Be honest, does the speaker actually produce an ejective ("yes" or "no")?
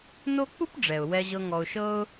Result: no